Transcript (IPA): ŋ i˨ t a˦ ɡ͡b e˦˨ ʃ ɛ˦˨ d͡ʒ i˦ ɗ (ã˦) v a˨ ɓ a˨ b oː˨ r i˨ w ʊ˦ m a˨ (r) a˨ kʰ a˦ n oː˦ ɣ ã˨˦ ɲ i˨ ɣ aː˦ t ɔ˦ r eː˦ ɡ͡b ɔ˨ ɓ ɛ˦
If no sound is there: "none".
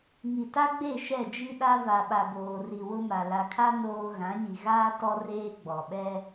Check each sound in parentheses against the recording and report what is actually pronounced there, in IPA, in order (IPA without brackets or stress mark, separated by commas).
a˦, l